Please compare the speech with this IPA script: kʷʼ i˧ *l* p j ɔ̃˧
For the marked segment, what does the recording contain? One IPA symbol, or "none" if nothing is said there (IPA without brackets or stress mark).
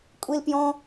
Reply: l